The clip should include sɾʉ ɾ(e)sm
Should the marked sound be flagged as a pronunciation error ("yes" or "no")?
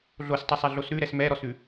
yes